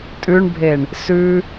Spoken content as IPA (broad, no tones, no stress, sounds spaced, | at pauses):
tʼ ʉ ɳ bʱ e ɳ | s ʉ